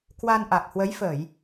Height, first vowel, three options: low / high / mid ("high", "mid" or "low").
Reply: low